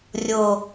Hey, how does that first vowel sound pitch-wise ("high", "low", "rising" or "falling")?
low